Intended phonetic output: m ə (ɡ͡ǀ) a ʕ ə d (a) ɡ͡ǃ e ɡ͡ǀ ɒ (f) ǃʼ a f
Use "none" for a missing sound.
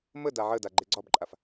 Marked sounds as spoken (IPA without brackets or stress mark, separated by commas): d, a, b